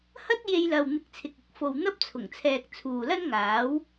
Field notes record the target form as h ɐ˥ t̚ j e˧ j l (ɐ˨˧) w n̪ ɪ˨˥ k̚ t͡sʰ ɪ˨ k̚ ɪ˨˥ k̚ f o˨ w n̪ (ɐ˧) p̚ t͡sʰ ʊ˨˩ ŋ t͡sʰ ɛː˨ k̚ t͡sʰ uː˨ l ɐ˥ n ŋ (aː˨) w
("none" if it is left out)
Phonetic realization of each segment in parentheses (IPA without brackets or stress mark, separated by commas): ɐ˨, ɐ˥, aː˨˥